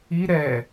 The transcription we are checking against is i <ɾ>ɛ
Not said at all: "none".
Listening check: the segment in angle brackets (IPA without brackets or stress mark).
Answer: ɾ